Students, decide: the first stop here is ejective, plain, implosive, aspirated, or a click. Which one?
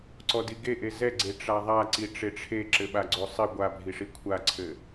click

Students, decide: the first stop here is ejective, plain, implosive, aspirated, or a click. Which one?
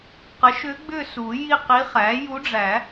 plain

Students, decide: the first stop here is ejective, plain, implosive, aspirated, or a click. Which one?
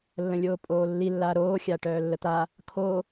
ejective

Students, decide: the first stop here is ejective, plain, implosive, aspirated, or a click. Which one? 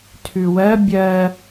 aspirated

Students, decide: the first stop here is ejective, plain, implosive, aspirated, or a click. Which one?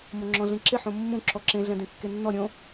click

